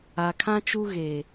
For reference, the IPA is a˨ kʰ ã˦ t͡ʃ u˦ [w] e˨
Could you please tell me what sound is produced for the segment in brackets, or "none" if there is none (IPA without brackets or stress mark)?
ɣ